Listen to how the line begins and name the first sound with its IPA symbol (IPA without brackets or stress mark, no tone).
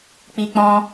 k͡p